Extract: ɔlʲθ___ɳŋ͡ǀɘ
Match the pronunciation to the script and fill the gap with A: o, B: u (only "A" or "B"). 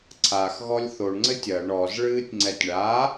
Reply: A